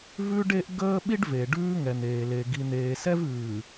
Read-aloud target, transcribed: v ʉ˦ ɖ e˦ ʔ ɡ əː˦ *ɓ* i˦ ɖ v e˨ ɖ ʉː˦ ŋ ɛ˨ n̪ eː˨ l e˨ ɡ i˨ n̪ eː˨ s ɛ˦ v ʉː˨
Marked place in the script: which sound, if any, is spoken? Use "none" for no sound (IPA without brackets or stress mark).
ɓ